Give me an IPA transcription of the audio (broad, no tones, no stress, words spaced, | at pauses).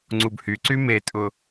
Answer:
ŋ͡ǀubhyǀy metʼʊ